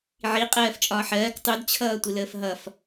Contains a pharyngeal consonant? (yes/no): yes